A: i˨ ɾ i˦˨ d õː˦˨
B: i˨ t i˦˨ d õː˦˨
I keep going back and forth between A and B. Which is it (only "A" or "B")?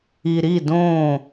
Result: A